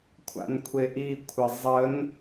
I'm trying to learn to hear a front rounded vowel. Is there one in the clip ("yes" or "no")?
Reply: no